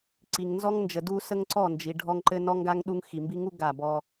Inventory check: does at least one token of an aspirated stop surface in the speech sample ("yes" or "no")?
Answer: no